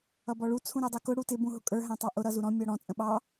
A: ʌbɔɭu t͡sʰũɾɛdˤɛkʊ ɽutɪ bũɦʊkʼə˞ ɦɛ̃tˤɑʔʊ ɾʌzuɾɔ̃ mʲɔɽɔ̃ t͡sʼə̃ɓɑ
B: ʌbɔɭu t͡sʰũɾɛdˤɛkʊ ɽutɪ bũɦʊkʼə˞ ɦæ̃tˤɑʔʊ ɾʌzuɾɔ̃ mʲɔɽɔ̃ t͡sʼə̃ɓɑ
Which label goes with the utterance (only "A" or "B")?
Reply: B